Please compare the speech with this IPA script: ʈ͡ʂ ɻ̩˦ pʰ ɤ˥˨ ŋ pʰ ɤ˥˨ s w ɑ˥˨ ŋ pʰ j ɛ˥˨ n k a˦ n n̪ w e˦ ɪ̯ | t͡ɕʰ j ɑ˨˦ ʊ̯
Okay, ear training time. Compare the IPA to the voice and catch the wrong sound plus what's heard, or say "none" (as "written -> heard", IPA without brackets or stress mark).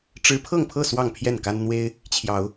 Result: none